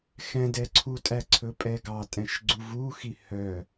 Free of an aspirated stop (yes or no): no